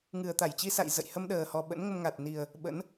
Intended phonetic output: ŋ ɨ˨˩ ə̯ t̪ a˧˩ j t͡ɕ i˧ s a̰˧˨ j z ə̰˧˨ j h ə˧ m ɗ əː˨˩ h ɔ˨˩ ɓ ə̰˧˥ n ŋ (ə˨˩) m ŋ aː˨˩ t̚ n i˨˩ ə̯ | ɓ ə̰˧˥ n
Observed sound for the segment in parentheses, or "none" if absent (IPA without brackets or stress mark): ə˧